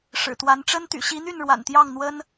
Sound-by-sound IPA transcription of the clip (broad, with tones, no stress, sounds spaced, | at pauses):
ʂ ɻ̩˨˩ t̪ w a˧˥ n ʈ͡ʂ ə˥ n t̪ y̰˨˩ ɕ i˧˥ n̪ y˥˩ n ɻ w a̰˨˩ n t̪ j ɑ˥˩ ŋ n̪ w ə˥ n